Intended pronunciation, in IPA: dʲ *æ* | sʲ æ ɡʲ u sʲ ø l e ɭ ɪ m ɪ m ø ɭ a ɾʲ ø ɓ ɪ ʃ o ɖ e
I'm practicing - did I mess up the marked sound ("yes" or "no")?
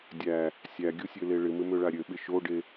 no